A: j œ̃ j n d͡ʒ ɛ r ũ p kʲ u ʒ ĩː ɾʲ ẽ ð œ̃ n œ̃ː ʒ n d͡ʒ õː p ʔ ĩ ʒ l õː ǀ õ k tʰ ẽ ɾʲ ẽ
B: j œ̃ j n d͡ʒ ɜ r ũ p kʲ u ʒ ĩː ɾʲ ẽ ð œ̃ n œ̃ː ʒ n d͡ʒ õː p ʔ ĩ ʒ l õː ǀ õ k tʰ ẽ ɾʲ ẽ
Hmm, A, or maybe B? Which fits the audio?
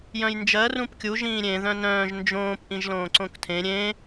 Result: B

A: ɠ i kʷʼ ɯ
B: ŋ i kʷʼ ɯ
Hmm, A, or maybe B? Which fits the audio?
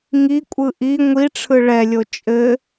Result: B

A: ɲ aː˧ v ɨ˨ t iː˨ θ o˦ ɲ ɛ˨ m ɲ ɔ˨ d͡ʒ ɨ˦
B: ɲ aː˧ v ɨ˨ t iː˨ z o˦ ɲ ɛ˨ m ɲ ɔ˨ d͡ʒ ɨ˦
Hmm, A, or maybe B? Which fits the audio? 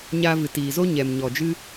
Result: B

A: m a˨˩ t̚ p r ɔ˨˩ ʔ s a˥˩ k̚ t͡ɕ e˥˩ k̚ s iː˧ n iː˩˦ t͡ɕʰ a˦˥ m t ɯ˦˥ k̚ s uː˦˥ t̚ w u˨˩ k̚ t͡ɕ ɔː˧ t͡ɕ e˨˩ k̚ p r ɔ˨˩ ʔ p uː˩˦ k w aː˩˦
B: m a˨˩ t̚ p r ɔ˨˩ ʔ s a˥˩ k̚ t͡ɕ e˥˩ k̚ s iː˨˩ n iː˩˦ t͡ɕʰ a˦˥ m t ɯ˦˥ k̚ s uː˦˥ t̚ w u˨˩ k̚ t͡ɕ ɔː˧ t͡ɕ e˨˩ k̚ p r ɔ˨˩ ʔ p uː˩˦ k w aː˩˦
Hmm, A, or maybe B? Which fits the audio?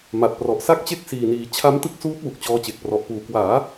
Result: B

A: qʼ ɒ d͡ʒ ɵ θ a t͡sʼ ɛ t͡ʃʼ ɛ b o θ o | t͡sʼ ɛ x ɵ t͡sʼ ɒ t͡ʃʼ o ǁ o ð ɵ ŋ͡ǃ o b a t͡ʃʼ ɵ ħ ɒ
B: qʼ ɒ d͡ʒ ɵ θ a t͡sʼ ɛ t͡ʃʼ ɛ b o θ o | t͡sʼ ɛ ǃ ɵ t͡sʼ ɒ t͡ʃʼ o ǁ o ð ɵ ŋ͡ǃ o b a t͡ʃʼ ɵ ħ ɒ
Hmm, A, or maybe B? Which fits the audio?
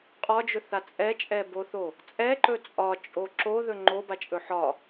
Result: B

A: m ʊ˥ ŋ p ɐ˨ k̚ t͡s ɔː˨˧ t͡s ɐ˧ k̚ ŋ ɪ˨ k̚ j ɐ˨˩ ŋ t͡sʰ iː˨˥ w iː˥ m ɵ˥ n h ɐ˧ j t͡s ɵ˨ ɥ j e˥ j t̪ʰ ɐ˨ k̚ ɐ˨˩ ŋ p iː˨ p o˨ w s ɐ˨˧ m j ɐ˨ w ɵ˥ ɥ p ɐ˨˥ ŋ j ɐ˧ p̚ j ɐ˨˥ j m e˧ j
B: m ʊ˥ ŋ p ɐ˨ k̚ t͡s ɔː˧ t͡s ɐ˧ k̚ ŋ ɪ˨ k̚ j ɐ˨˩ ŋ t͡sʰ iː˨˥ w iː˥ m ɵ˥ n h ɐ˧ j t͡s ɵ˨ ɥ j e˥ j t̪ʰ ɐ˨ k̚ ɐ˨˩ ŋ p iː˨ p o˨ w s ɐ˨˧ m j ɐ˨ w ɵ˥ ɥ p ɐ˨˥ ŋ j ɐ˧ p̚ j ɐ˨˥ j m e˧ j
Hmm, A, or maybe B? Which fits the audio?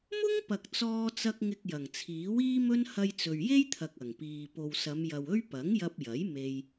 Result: B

